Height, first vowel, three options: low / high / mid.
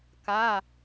low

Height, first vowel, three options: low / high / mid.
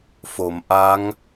mid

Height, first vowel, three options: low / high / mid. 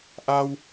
low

